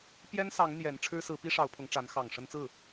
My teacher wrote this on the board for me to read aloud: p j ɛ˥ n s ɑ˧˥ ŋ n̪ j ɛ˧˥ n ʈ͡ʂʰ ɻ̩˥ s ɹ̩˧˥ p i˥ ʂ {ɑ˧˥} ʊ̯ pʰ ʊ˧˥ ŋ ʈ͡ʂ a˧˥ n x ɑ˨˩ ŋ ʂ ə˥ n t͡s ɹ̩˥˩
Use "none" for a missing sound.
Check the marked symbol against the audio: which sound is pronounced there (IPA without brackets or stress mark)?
ɑ˧˥